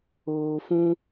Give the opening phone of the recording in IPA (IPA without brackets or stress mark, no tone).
oː